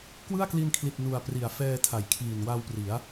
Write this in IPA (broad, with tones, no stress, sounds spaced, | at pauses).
k w ɯ˥˩ a̯ k l i˧ n kʰ l i˨˩ t̚ n u˨˩ a̯ p r i˨˩ a̯ f ɛː˧ tʰ a˩˦ j kʰ iː˨˩ n w a˧ w p r i˩˦ a̯